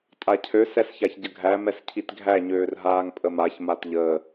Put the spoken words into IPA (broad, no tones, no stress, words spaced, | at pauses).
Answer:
tʼacʰø sɛsçaçɟəɡʱæ mɛscʰitɡʱæ ɲøːrɦaːŋpʼəmaç matʎəː